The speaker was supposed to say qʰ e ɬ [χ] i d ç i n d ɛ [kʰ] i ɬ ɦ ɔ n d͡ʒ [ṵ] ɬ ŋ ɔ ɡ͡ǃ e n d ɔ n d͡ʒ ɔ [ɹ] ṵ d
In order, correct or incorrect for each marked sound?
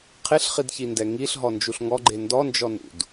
correct, incorrect, incorrect, incorrect

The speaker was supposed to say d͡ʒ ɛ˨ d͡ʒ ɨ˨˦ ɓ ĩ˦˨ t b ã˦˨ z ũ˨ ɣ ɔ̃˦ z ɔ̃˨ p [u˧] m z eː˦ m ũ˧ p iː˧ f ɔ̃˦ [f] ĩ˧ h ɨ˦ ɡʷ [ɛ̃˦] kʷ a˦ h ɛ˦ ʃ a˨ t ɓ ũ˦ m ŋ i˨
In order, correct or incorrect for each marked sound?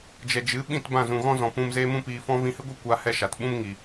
incorrect, incorrect, incorrect

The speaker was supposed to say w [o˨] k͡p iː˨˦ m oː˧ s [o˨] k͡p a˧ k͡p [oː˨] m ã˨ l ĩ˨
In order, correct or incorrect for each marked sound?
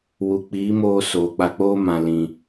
incorrect, incorrect, incorrect

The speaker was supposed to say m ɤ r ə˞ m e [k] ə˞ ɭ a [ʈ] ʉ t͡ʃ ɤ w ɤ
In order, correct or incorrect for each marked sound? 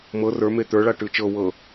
incorrect, correct

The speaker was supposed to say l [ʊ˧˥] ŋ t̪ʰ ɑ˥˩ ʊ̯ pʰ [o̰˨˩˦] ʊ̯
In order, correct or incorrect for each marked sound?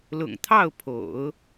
incorrect, correct

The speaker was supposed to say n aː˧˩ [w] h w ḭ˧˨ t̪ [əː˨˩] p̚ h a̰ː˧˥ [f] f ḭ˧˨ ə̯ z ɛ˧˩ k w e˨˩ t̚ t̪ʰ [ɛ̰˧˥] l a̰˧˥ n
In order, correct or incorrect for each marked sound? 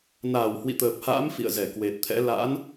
correct, correct, incorrect, correct

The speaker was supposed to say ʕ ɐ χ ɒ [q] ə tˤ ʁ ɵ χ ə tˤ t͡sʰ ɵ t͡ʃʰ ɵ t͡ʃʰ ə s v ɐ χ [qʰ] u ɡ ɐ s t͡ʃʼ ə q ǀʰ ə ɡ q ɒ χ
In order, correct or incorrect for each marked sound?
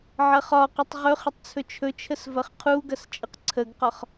correct, correct

